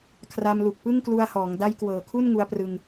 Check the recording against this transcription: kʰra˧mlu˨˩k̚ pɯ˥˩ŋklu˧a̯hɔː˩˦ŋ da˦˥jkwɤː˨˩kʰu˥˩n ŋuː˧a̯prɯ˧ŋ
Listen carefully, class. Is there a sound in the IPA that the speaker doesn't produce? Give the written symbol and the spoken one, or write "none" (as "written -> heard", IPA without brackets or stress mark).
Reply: uː˧ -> u˧